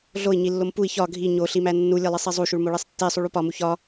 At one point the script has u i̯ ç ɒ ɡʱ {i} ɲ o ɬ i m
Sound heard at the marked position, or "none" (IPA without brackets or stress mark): i